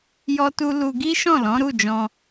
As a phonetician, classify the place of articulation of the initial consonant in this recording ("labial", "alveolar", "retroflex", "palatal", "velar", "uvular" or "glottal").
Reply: palatal